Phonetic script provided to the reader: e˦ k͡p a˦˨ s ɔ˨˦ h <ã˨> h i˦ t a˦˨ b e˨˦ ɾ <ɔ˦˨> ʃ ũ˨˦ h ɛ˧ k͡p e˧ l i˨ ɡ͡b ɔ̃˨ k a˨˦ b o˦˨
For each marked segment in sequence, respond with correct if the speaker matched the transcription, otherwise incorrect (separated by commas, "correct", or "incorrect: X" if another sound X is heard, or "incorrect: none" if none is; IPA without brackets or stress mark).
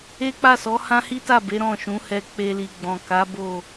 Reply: incorrect: ã˦, incorrect: ɔ̃˦˨